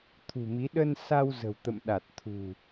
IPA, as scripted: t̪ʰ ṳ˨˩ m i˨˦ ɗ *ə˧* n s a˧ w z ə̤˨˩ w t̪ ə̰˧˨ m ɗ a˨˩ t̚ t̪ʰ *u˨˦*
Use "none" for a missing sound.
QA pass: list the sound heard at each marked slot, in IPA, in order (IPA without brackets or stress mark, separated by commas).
ə˧, ṳ˨˩